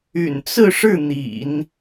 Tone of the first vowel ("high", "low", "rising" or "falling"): low